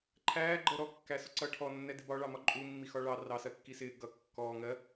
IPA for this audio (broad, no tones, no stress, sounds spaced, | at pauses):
ǃʰ æː ɡ͡ǃ ɜ ɾ ɔ kː æ s ʊ ǀ ʌ ʈʰ ɔ nː ɛ d ɪ b ɒ ɭ ɑ m ɒ ǃʼ u mː i x ɒ ɭ ɑ r ɑ s ɜ kː i s ɪː ɡ ʌ kː ɔː ŋ ɜ